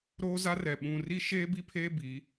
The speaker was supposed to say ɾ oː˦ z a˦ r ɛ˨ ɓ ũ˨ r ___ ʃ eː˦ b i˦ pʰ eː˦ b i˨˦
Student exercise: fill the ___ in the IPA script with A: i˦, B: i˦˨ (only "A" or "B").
A